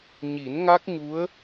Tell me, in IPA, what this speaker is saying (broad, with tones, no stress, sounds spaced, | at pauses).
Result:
ɲ i˨˩˦ n ŋ a˦˥ k̚ ɲ u˧˥ ə̯